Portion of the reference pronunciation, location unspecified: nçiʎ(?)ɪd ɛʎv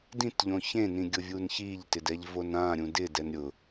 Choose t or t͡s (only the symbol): t